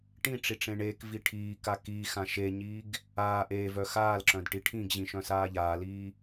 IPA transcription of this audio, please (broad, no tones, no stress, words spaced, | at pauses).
ʈĩ ʈ͡ʂiʈ͡ʂẽɳeːkvi ʈʰiːka kiːxã ʃeɲiːɡ | aː ʔeːvœ xaːlǁœ̃d ʈiʈʰĩɡʑĩ ʃœ̃saːʎaːliː